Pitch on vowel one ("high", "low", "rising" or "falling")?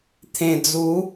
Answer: low